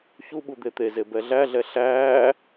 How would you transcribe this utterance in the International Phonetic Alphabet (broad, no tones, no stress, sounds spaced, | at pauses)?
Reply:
ç u ɓ u d̪ e t̪ e z e b ɛ ɮ æ ɮ ɛ ɬ æː